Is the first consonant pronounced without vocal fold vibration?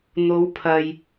no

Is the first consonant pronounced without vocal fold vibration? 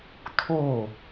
yes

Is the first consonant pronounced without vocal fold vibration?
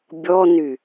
no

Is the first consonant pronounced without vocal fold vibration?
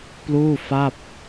yes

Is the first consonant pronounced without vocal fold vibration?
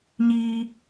no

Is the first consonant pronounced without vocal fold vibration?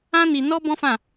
no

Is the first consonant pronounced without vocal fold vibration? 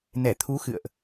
no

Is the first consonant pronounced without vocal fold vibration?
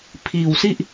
yes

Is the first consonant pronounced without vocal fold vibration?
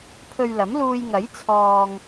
yes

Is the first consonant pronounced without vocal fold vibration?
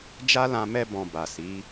no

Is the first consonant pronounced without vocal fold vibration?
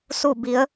yes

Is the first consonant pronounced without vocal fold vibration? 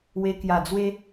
no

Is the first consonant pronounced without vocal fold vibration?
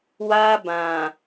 no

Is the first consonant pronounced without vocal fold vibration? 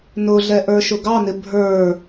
no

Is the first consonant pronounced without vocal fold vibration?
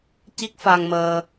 yes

